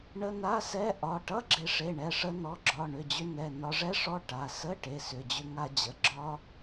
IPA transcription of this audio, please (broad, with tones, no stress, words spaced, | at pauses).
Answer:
ɳə˧˥˧na˧˥˧sɛ˧˥˧ ʔɒ˩˧˩ ʈʌ˧˥˧ɡ͡ǁe˧ʂe˩˧˩ ɳɛ˩˧˩ʂə˧ nɔ˩˧˩ ɡ͡ǁɒ˩˧˩ɳʏ˩˧˩d͡ʑʏ˧ nɛ˩˧˩nɒ˧ʐɛ˦˥ʂɔ˧˥˧ ʈa˩˧˩ sə˧˥˧ ʈe˩˧˩sʏ˩˧˩d͡ʑʏ˧ŋa˧ d͡ʑə˩˧˩ɡ͡ǁɒ˦˥